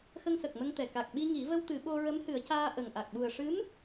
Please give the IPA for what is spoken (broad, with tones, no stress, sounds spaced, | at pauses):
x ə˧ ŋ s ə˨˩ k̚ m ə˧ ŋ t̪ ɛ˨˩ k a˨˩ k̚ ɓ i˧ ŋ i˨˩˦ v ə˧ w t̪ ɨ˨˩˦ ɓ o˧ ɹ ə˧˥ m h ɨ˨˩˦ ə̯ c aː˧ ʔ ə˨˩ ŋ ʔ a˨˩ k̚ ɓ u˨˩ ə̯ ʂ ɨ˧˥ m